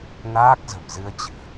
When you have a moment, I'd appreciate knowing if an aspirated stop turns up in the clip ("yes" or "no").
no